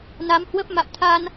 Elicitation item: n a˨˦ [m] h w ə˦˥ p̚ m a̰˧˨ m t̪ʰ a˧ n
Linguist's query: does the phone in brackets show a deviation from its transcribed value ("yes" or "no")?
no